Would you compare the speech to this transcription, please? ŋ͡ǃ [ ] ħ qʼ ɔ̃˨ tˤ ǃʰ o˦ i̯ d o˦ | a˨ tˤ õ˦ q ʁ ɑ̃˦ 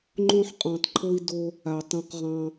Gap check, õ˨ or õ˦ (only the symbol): õ˦